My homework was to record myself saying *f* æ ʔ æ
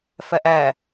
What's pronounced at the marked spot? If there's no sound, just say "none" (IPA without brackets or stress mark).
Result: f